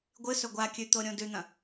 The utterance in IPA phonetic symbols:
ɡʷ ɨ s ɵ ɡʷ a kʲ ʉ t̪ o ɾʲ õ d ʉ n̪ ɐ̃

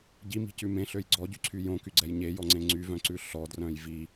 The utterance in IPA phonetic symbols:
ɟ i m i̤ c ʉ m ẽ ɬ ø j ɡ͡ǀ ɔ ɟ y ǀʰ y j õ k y ɡ͡ǀ ɛ j ɲ e j ɔ ŋ͡ǀ ẽ ŋ͡ǀ y v œ̃ ǀ ʉ ɬ ɔ d r œ̃ j v i

